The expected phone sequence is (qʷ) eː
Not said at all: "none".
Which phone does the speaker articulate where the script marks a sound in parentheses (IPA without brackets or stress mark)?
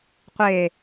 qʷ